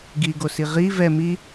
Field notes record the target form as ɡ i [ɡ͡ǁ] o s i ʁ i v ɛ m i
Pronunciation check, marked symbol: incorrect: ɡ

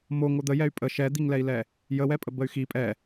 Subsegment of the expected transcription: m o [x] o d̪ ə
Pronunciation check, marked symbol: incorrect: ŋ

